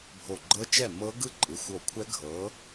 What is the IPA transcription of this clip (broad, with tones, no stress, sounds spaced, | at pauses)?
bʱ o˧˩ ɡ͡ǃ ɤ˦˥ t͡ʃ ɛ˥˨ m ɤ˦˥ ɡ ɯ˥˨ ǃʼ ɯ˩˧˩ xʷ o˧˩ kʷʰ ɛ˦˥ ɡʱ ɤ˨˥